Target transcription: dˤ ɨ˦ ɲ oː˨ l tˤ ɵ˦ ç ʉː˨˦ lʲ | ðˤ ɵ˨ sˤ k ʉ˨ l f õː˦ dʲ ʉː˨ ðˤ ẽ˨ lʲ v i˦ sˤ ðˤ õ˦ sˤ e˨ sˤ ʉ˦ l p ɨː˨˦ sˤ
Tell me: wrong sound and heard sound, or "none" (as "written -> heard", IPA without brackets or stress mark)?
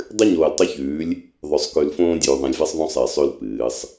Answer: none